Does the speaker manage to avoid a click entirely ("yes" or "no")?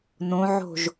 yes